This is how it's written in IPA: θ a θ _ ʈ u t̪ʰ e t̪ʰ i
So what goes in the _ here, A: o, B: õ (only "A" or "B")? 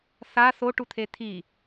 A